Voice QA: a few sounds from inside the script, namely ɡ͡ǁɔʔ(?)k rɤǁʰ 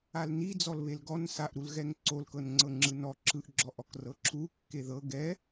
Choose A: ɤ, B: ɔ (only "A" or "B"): B